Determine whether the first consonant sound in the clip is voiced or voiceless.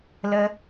voiced